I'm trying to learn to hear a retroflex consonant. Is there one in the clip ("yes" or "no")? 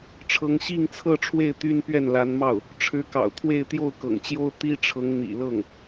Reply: yes